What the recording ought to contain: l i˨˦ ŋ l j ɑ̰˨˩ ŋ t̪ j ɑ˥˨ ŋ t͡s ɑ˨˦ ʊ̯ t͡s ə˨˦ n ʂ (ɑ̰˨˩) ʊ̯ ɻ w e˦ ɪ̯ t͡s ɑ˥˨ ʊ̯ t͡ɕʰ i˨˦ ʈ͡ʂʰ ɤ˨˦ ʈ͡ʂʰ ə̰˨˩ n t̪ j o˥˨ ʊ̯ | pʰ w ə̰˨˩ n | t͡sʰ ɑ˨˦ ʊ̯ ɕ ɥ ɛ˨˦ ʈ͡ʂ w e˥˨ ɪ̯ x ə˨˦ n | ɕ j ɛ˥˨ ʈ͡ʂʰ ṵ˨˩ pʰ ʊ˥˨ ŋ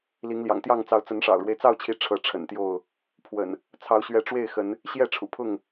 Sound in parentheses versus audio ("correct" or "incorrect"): correct